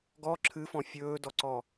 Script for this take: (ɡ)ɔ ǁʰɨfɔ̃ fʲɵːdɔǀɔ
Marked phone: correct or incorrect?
correct